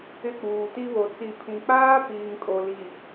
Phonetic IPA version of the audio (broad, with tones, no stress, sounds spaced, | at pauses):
ɪ˦˨ k͡p uː˨ t i˦ β o˨ t͡s i˨ pʰ ĩ˨ k͡p aː˦ p iː˨ ŋ kʼ o˨ l i˨